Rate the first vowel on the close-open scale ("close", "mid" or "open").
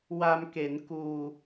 open